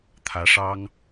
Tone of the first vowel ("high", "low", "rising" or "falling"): rising